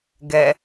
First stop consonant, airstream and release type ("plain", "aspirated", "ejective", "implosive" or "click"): plain